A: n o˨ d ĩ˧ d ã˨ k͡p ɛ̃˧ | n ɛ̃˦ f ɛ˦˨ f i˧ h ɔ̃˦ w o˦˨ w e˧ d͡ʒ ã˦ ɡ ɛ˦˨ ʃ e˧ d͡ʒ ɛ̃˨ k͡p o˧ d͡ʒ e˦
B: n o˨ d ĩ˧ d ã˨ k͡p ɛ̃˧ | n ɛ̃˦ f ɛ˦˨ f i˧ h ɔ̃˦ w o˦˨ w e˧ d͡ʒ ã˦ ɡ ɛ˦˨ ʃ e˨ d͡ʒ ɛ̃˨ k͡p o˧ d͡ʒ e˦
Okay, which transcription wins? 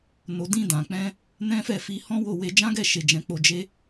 B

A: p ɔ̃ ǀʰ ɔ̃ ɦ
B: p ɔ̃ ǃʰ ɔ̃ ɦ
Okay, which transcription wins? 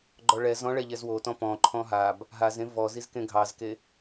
B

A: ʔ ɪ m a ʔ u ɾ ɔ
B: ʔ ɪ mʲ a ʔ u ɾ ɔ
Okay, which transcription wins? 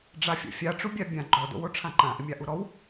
B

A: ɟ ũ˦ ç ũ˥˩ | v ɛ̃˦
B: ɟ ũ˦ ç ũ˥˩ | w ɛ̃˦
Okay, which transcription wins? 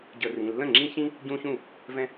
A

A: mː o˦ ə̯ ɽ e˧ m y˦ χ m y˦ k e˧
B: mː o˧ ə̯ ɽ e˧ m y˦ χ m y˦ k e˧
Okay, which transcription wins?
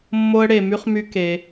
A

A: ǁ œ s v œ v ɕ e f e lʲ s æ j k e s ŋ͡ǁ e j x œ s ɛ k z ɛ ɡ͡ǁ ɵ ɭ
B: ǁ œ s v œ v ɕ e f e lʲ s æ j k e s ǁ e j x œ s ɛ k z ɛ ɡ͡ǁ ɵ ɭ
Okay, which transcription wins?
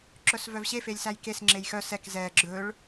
A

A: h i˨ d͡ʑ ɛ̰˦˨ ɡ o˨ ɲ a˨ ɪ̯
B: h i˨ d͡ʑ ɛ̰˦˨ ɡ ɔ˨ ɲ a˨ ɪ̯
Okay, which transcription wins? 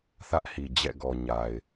B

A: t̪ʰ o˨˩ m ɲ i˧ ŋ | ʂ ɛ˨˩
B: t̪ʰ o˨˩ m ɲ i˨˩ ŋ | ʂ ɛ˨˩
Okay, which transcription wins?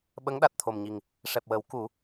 B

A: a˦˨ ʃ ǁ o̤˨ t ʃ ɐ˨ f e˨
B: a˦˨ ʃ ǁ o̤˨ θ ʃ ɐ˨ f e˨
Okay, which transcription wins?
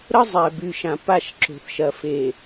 B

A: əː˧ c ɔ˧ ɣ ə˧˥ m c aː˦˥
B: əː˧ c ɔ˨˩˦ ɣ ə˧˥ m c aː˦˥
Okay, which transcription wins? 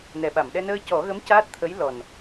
B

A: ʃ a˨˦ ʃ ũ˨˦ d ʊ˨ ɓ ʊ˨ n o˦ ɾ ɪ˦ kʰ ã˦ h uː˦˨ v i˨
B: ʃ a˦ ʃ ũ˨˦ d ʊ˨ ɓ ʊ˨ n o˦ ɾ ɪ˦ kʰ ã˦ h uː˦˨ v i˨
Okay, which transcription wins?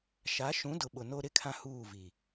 A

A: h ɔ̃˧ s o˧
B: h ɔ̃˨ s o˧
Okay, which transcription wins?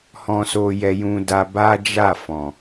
A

